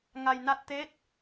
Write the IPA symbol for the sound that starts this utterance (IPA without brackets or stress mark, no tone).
ŋ